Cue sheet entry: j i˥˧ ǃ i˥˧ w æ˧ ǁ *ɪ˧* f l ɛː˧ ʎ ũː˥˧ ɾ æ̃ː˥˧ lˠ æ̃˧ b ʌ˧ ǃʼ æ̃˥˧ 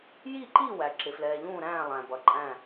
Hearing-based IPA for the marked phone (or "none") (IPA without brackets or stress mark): ɪ˧